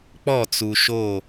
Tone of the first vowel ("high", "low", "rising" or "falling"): falling